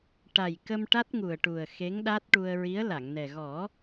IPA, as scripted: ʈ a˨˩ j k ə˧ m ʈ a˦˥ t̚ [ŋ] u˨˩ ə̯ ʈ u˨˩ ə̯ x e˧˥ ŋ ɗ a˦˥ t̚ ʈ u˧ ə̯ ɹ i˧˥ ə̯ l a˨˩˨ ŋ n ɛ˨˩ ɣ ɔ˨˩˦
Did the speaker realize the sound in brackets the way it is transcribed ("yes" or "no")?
yes